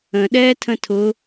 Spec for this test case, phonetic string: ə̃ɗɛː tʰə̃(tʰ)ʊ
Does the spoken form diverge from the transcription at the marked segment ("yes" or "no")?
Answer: no